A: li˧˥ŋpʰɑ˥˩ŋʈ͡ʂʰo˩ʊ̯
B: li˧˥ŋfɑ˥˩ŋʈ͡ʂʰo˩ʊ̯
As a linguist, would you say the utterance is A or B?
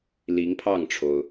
A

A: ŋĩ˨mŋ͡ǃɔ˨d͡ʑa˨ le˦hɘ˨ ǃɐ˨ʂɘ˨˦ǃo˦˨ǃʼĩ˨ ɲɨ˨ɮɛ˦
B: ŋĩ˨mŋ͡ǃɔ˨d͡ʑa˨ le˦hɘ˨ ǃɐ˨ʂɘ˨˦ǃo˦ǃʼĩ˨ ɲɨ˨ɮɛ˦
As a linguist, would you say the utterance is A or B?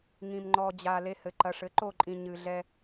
A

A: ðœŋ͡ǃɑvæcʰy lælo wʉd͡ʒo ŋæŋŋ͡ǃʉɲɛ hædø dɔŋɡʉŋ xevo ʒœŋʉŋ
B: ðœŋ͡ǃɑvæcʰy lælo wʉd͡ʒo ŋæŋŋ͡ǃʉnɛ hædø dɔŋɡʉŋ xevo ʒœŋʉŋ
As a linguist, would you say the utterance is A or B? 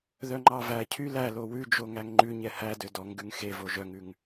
A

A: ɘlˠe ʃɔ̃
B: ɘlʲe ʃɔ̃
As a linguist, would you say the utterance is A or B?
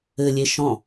B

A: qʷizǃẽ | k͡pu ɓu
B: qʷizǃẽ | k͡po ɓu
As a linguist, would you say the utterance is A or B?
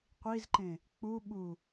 A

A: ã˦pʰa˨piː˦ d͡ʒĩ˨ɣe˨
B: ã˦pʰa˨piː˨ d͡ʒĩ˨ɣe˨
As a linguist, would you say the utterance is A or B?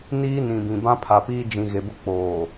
A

